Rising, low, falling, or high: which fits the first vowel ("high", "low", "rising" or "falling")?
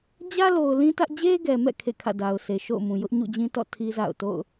high